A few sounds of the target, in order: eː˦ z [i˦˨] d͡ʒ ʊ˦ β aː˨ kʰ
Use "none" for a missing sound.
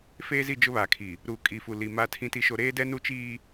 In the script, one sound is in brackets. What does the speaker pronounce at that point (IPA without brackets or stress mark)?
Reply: i˦˨